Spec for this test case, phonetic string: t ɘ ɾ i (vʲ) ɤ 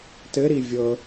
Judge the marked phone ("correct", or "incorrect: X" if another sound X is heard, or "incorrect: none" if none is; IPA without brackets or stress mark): correct